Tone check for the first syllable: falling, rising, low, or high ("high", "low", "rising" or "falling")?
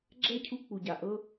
high